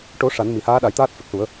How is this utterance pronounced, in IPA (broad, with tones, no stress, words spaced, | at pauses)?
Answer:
ʈo˨˩˦ ʂa˨˩˦nmi˨˩˨haː˧˥ɗa˨˩˦j t̪aː˦˥t̚fɛ˨˩k̚su˨˩˦ə̯